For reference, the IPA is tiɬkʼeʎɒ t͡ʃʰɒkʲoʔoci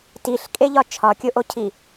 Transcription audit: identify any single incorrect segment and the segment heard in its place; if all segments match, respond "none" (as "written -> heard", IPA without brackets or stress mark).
c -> cʰ